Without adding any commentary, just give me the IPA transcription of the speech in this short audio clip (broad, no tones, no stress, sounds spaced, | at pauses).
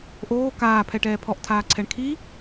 ʔ oː k aː pʰ ɛ ʈ ɛː pʰ ɔ ʔ tʰ aː ǀʰ ɛ ɳ kʰ i